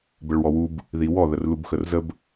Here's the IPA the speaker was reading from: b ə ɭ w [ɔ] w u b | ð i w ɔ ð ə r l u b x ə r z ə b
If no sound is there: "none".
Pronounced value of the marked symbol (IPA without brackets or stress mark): ɔ